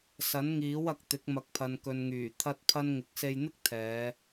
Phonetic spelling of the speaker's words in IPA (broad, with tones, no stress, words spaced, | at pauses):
sɐ˨˥nŋiː˨˥wɐ˨k̚t̪ɪ˨˥k̚ mɐ˨k̚pʰɐ˨nkɵ˨nŋyː˨˩ t̪ʰɐ˥t̚pʰɐ˥n ŋɪ˨k̚se˧jn̪ɪ˥k̚ t̪ʰɛː˨˧